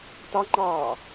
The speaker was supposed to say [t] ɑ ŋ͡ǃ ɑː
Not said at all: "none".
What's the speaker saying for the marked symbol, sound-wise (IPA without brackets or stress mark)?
t